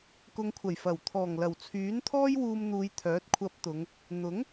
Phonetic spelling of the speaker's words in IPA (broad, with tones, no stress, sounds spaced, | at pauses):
k ʊ˨ ŋ kʷʰ ɐ˨˩ j f ɐ˨˩ w t̪ʰ ɔː˨˩ ŋ l ɐ˨˩ w t͡sʰ yː˨˥ n t̪ʰ ɔː˥ j w uː˧ m n̪ uː˨˧ j t̪ʰ œː˨˥ t̚ kʷʰ ɐ˧ p̚ t̪ ʊ˨˧ ŋ | n̪ ʊ˨˥ ŋ